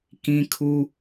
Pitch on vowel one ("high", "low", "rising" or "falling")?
high